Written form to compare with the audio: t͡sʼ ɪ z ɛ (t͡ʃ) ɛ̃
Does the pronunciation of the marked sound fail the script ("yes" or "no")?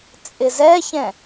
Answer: yes